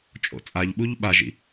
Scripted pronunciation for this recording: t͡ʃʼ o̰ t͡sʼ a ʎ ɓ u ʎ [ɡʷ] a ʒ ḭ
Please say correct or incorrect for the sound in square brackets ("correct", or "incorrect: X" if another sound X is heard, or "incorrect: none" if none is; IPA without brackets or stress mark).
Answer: incorrect: ɓ